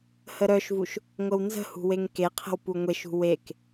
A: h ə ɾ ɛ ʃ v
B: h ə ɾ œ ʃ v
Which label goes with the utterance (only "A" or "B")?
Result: B